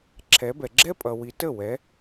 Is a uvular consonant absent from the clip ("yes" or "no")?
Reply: yes